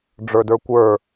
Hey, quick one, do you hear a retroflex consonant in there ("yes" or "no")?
yes